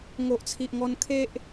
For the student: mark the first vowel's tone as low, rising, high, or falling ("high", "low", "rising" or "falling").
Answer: low